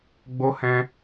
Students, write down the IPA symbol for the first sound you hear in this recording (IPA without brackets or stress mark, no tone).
ɡ͡b